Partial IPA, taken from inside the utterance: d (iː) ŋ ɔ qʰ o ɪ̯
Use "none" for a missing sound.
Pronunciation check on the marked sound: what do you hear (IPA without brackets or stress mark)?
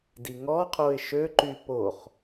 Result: i